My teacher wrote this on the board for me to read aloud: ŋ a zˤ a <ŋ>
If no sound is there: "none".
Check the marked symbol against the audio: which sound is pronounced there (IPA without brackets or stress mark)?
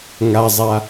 none